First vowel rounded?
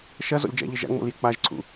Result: no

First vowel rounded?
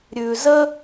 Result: yes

